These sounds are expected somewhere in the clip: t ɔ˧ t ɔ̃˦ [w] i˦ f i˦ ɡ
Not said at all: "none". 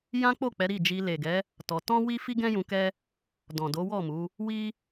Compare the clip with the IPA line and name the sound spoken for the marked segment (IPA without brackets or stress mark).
w